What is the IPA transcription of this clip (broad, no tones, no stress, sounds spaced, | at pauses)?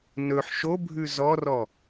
n ɵ ħ ʃ o bʱ ʉ z ɔ r ɔ